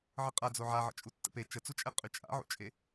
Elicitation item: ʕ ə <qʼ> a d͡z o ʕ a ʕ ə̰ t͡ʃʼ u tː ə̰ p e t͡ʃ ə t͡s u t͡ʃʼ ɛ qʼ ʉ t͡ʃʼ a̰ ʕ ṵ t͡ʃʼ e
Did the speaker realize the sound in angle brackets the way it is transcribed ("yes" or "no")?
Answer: yes